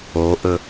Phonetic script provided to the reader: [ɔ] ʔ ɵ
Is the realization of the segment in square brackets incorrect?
yes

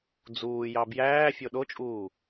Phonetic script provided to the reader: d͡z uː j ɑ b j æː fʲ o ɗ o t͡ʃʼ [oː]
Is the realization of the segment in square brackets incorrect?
yes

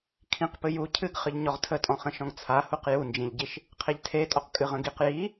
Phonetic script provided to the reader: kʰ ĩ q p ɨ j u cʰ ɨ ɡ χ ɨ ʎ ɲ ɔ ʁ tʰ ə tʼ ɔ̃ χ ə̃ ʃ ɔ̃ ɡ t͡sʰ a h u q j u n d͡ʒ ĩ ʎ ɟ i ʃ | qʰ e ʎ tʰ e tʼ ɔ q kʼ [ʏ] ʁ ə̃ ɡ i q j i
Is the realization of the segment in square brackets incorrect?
yes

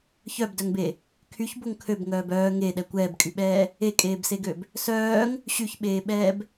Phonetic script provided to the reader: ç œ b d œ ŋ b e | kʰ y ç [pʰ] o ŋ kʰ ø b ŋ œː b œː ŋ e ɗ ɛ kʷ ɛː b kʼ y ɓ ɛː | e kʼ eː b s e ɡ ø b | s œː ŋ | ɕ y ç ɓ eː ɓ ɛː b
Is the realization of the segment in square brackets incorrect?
yes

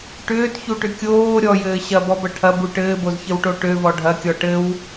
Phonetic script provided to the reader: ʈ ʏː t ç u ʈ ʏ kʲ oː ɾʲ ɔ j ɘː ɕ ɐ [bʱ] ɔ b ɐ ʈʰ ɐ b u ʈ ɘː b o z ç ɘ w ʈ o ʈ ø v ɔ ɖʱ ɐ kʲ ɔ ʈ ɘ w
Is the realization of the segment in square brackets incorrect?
yes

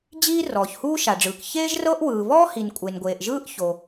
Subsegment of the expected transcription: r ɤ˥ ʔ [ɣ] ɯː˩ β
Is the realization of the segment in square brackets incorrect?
yes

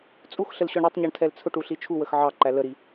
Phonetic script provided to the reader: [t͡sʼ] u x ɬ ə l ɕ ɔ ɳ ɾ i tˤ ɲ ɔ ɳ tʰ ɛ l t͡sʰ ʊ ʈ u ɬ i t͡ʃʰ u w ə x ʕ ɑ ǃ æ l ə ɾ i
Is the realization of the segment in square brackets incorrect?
no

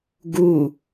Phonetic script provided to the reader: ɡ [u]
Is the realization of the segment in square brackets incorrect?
no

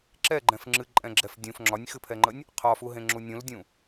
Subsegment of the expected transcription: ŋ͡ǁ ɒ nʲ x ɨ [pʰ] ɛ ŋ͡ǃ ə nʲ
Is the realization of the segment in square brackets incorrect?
no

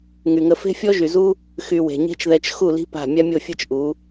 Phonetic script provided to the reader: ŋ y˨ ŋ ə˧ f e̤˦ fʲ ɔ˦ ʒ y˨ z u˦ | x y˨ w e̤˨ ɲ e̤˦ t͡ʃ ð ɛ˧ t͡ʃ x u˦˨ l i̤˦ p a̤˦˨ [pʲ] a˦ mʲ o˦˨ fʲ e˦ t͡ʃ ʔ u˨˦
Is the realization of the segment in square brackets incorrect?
yes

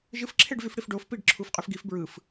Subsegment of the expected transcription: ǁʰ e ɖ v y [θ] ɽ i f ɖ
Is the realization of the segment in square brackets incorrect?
yes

